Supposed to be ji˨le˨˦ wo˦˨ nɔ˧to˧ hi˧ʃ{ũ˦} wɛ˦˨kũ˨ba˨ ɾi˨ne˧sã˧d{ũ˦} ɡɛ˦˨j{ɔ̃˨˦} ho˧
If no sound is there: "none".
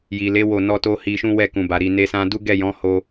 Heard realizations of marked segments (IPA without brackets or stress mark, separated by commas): ũ˦, u˦, ɔ̃˨˦